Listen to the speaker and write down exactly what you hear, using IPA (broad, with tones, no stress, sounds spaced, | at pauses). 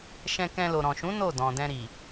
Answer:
ʃ ɛ̃˧ k ɛ̃˧ l o˨ ɾ ɔ̃˨ ʃ ũ˨˦ n o˦˨ d ɔ̃˨ d ɛ̃˧ ɾ i˨